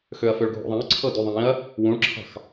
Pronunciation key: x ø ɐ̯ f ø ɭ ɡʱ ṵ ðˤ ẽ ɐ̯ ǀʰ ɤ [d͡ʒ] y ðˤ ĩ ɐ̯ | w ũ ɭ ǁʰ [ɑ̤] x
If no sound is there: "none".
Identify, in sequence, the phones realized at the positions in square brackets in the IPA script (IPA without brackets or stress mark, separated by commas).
d, ɑ̤